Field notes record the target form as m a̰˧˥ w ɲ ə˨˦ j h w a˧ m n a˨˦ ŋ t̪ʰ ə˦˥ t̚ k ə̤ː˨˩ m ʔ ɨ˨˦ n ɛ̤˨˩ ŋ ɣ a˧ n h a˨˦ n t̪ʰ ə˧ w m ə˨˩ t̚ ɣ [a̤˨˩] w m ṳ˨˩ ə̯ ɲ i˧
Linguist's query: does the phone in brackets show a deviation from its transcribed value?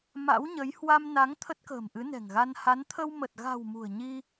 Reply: no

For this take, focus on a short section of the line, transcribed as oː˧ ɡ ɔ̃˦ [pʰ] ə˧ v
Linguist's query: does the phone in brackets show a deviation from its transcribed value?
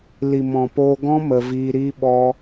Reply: yes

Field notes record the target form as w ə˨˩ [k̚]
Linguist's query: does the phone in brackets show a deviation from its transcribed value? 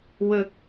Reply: no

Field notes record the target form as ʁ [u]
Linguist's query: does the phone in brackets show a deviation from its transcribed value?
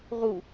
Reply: no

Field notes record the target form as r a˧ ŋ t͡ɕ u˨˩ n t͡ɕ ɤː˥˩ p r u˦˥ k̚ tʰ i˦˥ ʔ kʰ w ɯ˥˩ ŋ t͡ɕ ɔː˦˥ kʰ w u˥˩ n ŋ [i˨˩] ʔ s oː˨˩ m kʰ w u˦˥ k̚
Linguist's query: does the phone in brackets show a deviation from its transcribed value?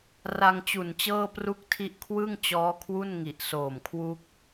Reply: no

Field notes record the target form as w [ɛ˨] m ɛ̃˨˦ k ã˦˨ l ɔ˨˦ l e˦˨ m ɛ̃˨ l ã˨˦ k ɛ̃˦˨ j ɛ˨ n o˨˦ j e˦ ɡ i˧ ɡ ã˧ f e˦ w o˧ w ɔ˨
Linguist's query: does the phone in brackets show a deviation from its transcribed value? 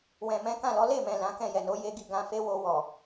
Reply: yes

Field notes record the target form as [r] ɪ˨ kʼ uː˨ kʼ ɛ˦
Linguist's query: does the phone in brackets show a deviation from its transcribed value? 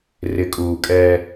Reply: no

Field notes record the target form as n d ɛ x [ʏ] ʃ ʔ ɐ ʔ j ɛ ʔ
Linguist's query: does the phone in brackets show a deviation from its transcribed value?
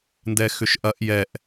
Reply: no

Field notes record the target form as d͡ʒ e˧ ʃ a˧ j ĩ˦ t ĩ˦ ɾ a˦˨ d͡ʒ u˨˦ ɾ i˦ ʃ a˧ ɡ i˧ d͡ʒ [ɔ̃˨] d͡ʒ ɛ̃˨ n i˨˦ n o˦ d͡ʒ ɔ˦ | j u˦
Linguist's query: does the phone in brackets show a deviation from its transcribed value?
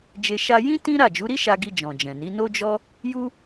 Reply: no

